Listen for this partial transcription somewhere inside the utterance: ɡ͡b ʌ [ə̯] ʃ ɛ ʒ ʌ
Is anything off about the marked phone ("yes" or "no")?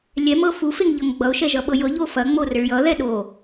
yes